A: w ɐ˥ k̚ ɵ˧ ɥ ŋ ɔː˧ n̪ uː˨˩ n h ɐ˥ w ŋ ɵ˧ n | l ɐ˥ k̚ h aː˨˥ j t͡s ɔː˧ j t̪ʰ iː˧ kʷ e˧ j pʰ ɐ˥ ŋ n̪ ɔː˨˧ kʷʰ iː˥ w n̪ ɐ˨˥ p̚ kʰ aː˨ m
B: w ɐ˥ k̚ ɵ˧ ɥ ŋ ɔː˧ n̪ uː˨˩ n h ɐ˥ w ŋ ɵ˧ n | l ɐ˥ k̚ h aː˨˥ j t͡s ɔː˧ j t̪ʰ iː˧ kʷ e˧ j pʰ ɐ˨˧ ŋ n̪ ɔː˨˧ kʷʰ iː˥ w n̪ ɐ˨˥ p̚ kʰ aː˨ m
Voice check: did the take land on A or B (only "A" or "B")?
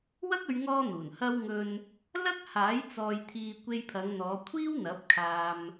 B